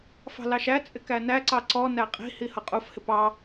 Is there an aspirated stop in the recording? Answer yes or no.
no